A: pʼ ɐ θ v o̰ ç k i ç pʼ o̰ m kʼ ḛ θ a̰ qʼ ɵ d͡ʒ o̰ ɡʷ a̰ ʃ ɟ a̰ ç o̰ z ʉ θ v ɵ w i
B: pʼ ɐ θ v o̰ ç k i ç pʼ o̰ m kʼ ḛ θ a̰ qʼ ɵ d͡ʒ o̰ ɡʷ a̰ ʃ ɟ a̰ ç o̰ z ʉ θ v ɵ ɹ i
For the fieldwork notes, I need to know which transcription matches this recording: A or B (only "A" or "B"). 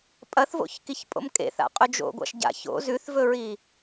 B